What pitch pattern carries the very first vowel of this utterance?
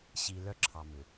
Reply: low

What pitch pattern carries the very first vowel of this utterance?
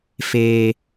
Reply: high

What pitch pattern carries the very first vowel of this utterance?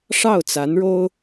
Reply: falling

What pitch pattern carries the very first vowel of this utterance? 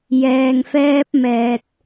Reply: low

